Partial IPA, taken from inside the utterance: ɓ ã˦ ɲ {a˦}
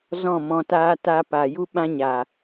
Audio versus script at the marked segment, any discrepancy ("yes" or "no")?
yes